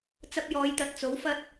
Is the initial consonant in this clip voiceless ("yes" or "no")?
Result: yes